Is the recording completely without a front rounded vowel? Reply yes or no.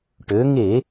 no